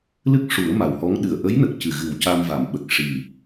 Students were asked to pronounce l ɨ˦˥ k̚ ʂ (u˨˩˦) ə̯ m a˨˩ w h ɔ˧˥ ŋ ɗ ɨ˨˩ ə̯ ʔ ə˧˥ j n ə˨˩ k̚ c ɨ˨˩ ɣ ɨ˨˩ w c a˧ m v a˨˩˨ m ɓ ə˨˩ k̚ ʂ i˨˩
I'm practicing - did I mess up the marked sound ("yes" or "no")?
no